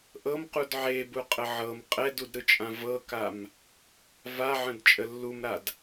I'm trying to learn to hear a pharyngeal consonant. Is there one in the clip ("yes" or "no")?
yes